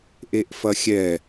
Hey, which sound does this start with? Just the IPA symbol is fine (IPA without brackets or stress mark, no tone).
ʔ